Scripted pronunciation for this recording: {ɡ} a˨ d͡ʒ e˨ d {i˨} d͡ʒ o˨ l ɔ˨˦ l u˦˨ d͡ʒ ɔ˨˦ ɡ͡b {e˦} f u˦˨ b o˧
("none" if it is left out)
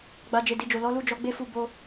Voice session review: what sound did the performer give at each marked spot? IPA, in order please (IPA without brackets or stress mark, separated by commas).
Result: ɡ͡b, i˨, e˦